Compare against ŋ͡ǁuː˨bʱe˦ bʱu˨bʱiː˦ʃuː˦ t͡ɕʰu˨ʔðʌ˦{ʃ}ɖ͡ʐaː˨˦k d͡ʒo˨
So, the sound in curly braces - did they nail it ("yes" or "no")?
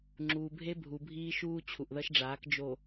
yes